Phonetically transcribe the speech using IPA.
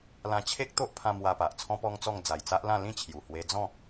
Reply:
l ã˧ t͡ɕʰ e˦ k̚ t̪ o˦ ʔ pʰ ã˧ m w a˧ p a˨ ʔ t͡sʰ ɔ̃˦ p ɔ˦ ŋ t͡s ɔ˥˧ ŋ d͡z a˨˩ j t͡s a˦ ʔ l ã˥˧ l ĩ˦ t͡ɕʰ j u˨˩ h w e˧ d͡z ɔ̃˥˧

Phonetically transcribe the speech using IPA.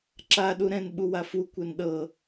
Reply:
ǁ a ɗ u ɾ ɛ̃ n ɓ u w a f u kʷ ɛ n ɗ ɤ

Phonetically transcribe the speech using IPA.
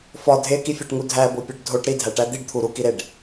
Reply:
f ɒ dʱ e k i fʲ æ ʈ ŋ u dʱ æ b o pʲ ɒ ɖ dʱ o ʈ ɾ i dʱ æ ʈ æ d̪ i ɖ t̪ʰ u ɾ u k i ɾ e ɖ

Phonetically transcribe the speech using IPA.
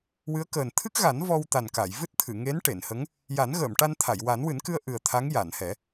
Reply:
w ɨ˧˥ ə̯ k əː˨˩ n t̪ʰ ɨ˦˥ k̚ ɣ a˨˩˦ n v ɔ˧ w t̪ a˨˩ n k a˨˩˨ j v ɨ˦˥ t̚ t̪ʰ ɨ˨˩˨ ŋ e˧˥ n ʈ e˨˩˨ n h ə˧˥ ŋ | j a˨˩˦ n ɣ əː˨˩˨ m ʈ a˧ n t̪ʰ a˨˩˨ j w a˨˩˦ n w ɨ˨˩˦ n k ɨ˧ ə̯ ʔ ɨ˨˩ ə̯ t̪ʰ a˧˥ ŋ j a˨˩˨ n h ɛ˨˩˦

